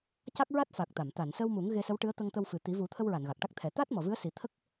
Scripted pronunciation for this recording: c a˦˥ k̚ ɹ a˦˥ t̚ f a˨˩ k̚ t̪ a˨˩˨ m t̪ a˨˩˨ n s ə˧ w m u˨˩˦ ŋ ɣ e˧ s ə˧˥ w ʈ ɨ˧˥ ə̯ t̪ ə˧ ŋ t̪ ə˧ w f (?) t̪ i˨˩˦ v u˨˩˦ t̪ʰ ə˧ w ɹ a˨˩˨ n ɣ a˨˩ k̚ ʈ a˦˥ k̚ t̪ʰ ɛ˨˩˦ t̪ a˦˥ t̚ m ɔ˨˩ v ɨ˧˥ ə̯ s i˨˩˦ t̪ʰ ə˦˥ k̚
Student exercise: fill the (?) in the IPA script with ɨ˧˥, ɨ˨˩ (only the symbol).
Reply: ɨ˨˩